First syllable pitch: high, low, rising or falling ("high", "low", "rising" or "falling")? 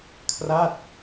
falling